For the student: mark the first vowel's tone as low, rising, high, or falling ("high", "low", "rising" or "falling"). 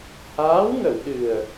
rising